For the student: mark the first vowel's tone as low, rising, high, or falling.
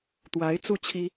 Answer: rising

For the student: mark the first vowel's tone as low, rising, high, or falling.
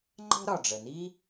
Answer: high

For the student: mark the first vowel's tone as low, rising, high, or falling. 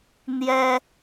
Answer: high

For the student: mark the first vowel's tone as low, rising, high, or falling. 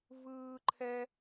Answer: high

